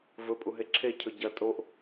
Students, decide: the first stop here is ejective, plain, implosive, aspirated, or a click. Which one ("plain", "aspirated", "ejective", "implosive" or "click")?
ejective